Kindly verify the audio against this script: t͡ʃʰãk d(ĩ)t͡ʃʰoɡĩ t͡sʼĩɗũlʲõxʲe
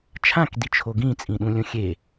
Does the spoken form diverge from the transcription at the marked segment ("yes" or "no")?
yes